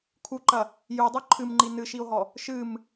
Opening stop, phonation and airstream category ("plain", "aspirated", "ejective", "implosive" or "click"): aspirated